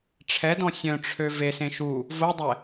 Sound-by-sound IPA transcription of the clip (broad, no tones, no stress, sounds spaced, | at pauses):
ʈ͡ʂʰ ɛ d ɔ̃ sʲ œ̃ ʈ͡ʂʰ ø v e s ẽ ʃ u | v o dˤ ɛ